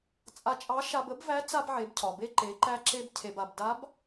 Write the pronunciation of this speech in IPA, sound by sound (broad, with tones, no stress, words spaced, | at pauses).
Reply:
t͡sʼa˧t͡ʃʼɑ˧˥ ʃa˧bə˧˥bvæ˧˥ t͡sa˧bʕe˩˧bcʰɒ˩ be˧ǃe˩˧ ǃæ˧ǁe˧b cʰe˩ba˩bda˧˥b